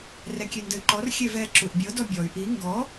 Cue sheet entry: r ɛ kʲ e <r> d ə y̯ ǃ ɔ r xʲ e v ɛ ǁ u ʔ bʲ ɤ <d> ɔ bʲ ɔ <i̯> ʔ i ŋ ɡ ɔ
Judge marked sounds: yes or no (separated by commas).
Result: no, yes, no